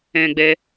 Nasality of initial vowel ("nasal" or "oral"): nasal